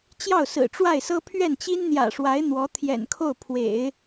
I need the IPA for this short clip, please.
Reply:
t͡ɕjɑ˥˩ʊ̯sɹ̩˨˩ʈ͡ʂwa˥˩ɪ̯ sɤ˥ pʰɥɛ˥˩nt͡ɕi˥nn̪jä̰˨˩ʂwa˧˥ɪ̯ n̪wɔ˧˥ t̪ʰjɛ̰˨˩nkʰo˥˩ʊ̯pʰwḛ˨˩˦ɪ̯

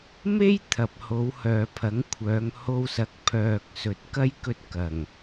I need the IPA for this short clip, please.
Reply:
me˥j t̪ʰɐ˨p̚ho˨˧w hœː˨pʰɐ˨˥ŋkʷʰœː˨˧ŋ ho˧wsɐ˨˥k̚ pʰœː˨k̚sɵ˨t̚ kɐ˥jkɵ˧t̚ kɐ˨˩ŋ

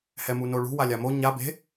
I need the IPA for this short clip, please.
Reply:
hɛmunoɭṳ walʲamo ɲa be̤

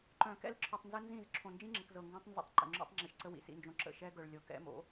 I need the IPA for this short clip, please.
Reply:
ǃœ̃˨kɛ̰˦l ǁʰœ˨tˤnzə˦nzĩ˦˨z ǁʰõ˨nd͡ʒĩ˦ŋ͡ǁə˨k zɤ˨ŋɡõ˦tˤnzə̰˦tˤ ǃə̰˨ŋ͡ǁo̰˦tˤŋ͡ǁi˨ʃǀə˦ wḭ˨sḭ˨nd͡ʒõ˨ǁə̰˦˨ ʃɛ˦ɡœ˨ɭ lʲɤ˨kɛ̰˦mo̰˨˦

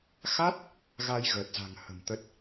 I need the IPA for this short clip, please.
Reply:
xa˦˥t̚ | ɣa˧jɣəː˨˩t̚za̤˨˩ŋ hə̤˨˩m t̪ə˨˩t̚

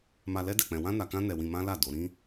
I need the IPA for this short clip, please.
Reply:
ma˧lɛ˦ dɛ˦˨k͡pɛ̃˧ wã˦na˧kã˦ nɛ˧wĩ˧mã˦la˦˨ do˨˦ ɾĩ˦

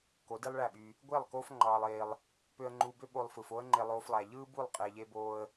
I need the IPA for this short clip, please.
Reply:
ko˨˦di˦lˠɭæ˦˨ɓy˧ | ɡʷe˦˨lˠ koː˦fŋ͡ǃɑː˧lˠeː˧lˠ | pø˧ə̯ŋ͡ǃuː˧bø˦ ɓo˧lˠfɯː˨fo˦ə̯ ŋ͡ǃe˧lˠoː˧flˠæ˨ ʎɯː˦bu˦˨lˠ qʼe˧ʎe˦boː˦ə̯

